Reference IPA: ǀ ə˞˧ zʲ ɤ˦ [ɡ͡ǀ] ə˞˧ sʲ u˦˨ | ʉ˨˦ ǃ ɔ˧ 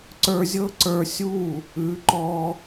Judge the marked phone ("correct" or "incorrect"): incorrect